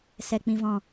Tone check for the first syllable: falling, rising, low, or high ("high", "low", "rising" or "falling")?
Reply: low